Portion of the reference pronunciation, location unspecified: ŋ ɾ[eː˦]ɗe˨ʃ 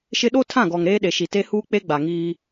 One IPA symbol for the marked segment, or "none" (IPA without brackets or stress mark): eː˦